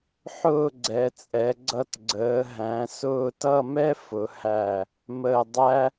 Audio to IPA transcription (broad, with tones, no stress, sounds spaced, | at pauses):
ħ ʊː˥˧ ɡ͡ǀ ɛ˩˧ t͡sʼ ɛ˩˧ ɡ͡ǀ ʌ˧ t ɡ͡ǀ əː˩˧ ɦ æ̃˩˧ s ʊː˥˧ t ʌ˥˧ m ɛ˥ f ʊ˩˧ h æ˧˩ | m əː˧˩ dˤ æ˥